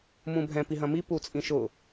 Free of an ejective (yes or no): no